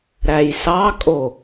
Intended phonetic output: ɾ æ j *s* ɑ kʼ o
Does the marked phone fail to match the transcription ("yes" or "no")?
no